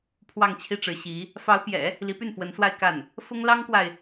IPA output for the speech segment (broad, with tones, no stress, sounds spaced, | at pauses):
pʰ w ɑ˥˧ ŋ t͡ɕʰ i˥˩ ʈ͡ʂ ɻ̩˧˥ ɕ i˧˥ | f ɑ˧˥ ʊ̯ p j ɛ̰˨˩˦ | l i˧˥ p y˥˩ n f w ə˧˥ n s w a˥˧ ɪ̯ k a˥˩ n | f ʊ˥ ŋ l ɑ˥ ŋ k w a˨ ɪ̯